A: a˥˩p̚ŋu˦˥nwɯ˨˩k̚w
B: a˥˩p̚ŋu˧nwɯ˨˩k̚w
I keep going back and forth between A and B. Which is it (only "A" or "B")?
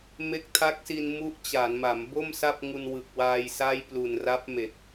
B